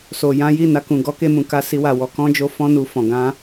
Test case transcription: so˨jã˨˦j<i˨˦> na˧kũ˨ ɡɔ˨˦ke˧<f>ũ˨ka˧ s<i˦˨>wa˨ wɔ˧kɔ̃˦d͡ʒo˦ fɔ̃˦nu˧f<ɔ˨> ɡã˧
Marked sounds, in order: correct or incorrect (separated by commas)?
incorrect, incorrect, incorrect, incorrect